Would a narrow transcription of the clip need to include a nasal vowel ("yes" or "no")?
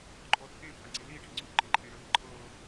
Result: yes